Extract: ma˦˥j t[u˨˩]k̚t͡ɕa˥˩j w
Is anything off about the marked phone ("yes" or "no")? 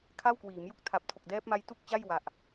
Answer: yes